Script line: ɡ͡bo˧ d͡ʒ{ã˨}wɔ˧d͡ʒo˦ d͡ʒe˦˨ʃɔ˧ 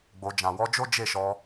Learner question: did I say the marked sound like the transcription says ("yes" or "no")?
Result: yes